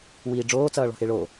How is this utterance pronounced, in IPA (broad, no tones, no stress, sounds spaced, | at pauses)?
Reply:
w iː ɖ͡ʐ oː t͡s ʌː ɭ ɔ̤ x e ɭ o